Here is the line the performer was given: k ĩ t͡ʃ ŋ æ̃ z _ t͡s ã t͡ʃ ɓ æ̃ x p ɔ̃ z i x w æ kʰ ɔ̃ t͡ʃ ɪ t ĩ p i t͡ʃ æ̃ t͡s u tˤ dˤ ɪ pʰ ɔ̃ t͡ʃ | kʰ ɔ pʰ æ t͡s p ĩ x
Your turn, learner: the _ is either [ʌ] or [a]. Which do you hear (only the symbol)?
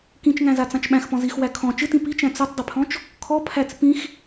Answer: a